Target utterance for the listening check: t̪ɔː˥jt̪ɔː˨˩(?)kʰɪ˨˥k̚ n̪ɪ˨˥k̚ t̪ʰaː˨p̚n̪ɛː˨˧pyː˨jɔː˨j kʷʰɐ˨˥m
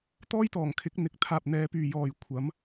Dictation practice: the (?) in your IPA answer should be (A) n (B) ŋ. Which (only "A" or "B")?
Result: B